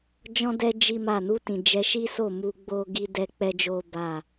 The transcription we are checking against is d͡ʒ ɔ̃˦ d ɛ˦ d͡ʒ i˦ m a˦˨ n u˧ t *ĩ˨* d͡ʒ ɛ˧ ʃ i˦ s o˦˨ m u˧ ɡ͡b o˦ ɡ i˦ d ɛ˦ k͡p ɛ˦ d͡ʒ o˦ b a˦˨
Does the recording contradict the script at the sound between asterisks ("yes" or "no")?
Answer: no